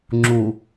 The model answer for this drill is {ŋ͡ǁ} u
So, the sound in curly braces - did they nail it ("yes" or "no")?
yes